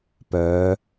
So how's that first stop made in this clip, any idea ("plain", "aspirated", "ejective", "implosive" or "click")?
plain